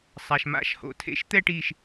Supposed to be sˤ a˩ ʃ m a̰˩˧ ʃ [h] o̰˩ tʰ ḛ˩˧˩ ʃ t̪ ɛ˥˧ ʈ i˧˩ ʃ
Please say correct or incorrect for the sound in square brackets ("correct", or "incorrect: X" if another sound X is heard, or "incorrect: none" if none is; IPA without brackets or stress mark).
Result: correct